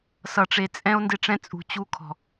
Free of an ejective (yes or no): no